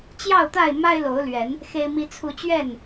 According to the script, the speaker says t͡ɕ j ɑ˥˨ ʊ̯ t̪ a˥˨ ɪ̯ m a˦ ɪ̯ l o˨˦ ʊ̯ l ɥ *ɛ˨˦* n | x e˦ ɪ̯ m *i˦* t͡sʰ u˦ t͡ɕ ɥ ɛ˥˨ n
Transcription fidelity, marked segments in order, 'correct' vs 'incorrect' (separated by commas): correct, correct